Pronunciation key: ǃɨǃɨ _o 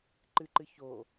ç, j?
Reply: ç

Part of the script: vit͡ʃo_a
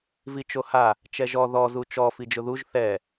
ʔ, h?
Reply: h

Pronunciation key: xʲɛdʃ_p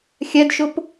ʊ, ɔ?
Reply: ʊ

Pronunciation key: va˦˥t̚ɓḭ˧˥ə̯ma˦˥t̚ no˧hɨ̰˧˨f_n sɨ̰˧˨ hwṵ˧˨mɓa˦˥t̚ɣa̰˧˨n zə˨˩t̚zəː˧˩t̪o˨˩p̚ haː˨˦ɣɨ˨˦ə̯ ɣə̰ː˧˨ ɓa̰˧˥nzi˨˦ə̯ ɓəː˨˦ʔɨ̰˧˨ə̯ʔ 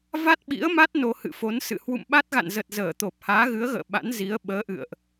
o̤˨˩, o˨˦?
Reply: o˨˦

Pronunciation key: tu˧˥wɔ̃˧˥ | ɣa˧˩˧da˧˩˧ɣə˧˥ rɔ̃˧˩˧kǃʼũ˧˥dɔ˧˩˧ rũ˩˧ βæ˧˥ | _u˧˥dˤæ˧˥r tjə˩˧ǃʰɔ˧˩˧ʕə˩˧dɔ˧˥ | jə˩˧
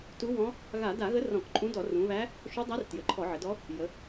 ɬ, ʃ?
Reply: ʃ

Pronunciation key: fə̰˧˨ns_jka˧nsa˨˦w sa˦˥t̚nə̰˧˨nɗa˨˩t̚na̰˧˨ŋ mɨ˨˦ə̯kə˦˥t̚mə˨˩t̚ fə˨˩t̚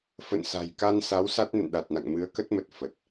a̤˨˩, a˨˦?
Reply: a̤˨˩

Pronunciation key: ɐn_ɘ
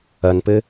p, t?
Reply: p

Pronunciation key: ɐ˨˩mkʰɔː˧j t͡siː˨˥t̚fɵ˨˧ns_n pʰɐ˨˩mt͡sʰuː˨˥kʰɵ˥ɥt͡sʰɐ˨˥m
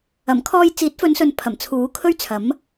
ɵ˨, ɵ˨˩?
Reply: ɵ˨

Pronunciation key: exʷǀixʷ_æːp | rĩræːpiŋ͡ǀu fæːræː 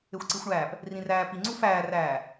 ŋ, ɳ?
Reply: ɳ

